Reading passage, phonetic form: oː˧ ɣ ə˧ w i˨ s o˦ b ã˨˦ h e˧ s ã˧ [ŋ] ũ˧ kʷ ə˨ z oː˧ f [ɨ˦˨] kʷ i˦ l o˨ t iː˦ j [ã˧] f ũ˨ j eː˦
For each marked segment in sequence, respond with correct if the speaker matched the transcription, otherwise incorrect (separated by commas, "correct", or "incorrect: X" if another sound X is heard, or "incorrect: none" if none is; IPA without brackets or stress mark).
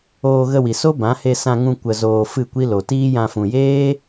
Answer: correct, correct, correct